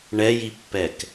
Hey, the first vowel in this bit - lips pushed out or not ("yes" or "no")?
no